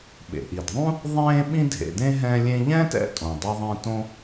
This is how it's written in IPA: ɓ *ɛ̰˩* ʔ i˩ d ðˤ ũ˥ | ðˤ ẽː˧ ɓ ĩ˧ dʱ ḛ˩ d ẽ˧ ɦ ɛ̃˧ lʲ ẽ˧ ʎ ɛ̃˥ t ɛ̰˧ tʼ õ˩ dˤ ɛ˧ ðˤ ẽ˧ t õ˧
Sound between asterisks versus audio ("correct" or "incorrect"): incorrect